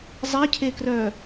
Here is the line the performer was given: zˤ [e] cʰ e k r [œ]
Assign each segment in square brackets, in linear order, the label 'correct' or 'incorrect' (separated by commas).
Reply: correct, correct